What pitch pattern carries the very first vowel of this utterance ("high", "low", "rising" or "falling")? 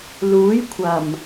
rising